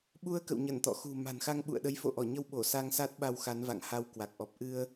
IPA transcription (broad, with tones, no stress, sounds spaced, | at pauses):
ɓ u˧ ə̯ k ə̰˧˨ w ɲ ə˧˩ n t̪ ɔ̰˧˨ x ṳ˨˩ m a̤˨˩ n x a˧ ŋ ɓ ṵ˧˨ ə̯ ɗ ə˨˦ j f o̰˧˨ ʔ ɔ˧˩ ɲ ə˧ w ɓ o˧˩ s a˧ ŋ s a˦˥ t̚ ɓ a˧ w x a˨˦ n v a̰˧˨ ŋ h a˧ w k w a˨˩ k̚ ʔ ɔ˨˩ p̚ ʔ ɨ˧ ə̯